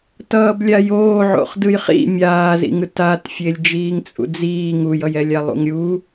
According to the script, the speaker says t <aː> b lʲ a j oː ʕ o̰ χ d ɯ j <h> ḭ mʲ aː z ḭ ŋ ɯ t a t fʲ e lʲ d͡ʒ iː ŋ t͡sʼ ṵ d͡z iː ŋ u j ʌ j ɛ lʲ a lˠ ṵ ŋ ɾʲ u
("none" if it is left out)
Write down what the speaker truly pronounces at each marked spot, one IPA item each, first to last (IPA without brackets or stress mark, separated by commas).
ʌː, χ